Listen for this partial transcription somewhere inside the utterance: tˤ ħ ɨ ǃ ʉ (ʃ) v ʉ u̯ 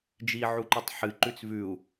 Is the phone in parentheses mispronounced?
yes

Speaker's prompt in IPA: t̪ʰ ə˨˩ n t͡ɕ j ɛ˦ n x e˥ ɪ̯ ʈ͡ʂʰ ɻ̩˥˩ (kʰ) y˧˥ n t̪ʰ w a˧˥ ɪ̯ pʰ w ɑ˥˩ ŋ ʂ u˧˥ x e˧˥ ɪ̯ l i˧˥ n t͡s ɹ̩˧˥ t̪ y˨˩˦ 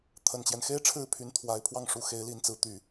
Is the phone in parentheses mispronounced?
yes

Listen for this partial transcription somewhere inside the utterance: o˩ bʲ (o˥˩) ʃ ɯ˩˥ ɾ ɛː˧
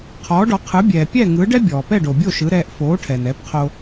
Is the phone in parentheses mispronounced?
no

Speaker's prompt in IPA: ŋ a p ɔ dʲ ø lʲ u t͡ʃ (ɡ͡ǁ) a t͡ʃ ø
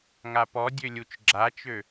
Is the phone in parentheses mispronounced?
no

